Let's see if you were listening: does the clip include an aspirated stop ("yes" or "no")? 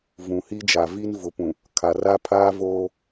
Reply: yes